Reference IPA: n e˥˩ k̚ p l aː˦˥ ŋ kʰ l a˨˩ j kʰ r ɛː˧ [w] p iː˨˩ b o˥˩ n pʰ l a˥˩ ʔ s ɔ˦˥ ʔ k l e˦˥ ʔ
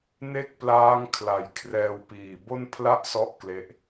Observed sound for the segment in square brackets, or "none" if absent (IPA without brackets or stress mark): w